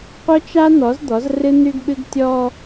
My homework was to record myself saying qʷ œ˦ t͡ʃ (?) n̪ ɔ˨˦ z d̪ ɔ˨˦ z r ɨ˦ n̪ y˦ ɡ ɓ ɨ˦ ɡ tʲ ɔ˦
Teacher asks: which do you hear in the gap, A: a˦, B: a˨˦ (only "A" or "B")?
A